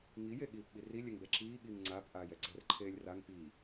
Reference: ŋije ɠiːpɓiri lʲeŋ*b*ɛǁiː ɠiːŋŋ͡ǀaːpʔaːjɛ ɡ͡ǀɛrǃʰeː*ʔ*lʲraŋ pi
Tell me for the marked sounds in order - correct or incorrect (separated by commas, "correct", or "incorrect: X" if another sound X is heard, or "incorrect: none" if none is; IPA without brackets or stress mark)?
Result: correct, incorrect: none